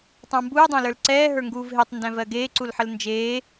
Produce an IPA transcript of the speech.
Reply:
tˤ ə̃ w m b uː dˤ æ̃ l ə˞ l ǀ ɛː ɦ ə˞ ŋ ɡ uː v ɦ e tˤ n d æ̃ v ɜ ɡ eː ǀ u l ħ ə l n d͡ʒ eː

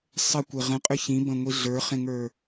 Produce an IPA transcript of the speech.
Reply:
sˤ ə kʷ e ʁ ə̃ qʼ ʏ ç ĩ b ə̃ ŋʷ i ɮ ə˞ χ ẽ ŋ ə˞

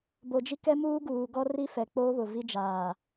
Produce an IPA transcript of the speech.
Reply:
b o˨ d͡ʒ i˦ k ɛ˦ m uː˦ ɡ uː˨ ɡ ɔ˦ r i˦ f ɛ˨ k͡p o˦ β ʊ˨ v i˦ d͡ʒ aː˨

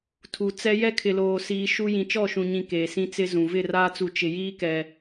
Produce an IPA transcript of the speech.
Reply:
tʰ u˨ t͡s ɛ˦ j ɛ˦ kʰ ɪ˨ l oː˨ s iː˨ ʃ u˦ j ĩ˨ t͡ʃ ɔ˦˨ ʃ ũ˨ ɲ ĩ˨ k eː˨ s ĩ˦ t͡s ɪ˦ z ũ˨ v ɪ˦˨ r aː˦ t͡s u˨ t͡ʃ ɪ˨ j iː˦ k ɛ˨

